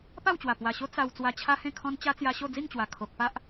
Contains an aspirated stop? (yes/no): yes